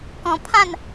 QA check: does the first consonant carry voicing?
no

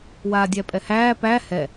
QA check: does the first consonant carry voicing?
yes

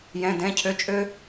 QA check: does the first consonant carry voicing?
yes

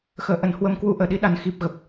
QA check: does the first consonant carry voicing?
no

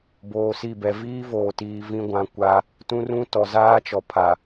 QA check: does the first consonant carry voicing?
yes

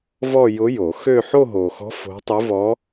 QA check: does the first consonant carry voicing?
yes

